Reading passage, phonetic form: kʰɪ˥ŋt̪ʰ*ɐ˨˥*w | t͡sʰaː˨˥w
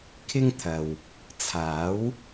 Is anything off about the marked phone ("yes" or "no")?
yes